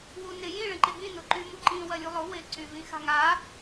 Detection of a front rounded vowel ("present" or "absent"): present